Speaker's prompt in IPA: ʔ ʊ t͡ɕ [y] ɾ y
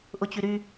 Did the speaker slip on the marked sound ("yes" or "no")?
no